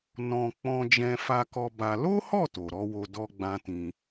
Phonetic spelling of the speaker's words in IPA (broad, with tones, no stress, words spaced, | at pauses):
nɔ̃˧ k͡pɔ̃˧d͡ʒɛ̃˧ fa˧kɔ˧ ba˧ lo˦hɔ˦˨ to˨ɾɔ˨˦wo˧ dɔ˦ɡ͡bã˦tĩ˧